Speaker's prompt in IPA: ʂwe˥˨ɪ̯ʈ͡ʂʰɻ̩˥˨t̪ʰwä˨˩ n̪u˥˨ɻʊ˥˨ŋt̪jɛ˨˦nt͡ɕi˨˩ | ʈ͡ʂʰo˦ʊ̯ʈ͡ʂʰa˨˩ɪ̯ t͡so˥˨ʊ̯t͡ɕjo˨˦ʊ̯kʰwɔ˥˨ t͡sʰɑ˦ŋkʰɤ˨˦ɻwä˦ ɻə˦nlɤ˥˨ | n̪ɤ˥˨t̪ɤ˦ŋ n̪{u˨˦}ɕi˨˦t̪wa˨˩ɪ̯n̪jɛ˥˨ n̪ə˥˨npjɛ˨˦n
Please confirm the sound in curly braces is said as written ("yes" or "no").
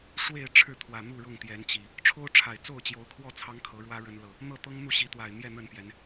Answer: no